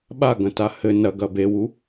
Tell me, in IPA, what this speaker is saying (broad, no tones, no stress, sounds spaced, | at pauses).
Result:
ɓ a ɡ ɐ̃ t a h ɘ n ɐ ɡ ɐ b e w u